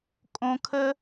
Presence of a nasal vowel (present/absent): present